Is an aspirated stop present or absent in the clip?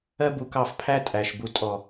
present